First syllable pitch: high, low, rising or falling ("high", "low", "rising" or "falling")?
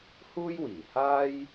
high